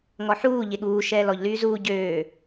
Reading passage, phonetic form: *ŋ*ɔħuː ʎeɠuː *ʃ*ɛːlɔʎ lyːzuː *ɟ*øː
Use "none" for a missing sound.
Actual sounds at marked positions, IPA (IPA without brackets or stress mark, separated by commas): ŋ, ʃ, ɟ